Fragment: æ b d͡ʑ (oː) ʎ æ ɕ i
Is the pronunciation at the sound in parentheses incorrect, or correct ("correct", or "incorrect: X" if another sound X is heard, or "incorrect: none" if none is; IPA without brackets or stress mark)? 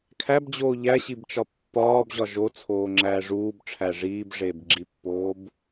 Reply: correct